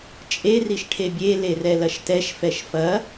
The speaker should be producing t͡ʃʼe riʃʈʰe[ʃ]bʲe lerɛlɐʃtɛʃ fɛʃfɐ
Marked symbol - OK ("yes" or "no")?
no